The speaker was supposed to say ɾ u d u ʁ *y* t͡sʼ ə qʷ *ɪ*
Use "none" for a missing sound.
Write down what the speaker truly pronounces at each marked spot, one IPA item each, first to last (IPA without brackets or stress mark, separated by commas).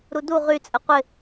y, ɪ